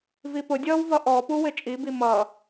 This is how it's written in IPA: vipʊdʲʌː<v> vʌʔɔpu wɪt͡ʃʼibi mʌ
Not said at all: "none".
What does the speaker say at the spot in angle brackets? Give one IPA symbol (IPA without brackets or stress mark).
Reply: w